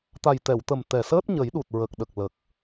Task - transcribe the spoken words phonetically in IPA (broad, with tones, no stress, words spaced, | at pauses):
t̪a˨˩jt̪ɛ˨˩˨wt̪ə˨˩m t̪ɛ˨˩səː˦˥t̚ ɲə˨˩˦jɗu˨˩t̚ɹə˨˩k̚ɗə˨˩k̚ lə˨˩k̚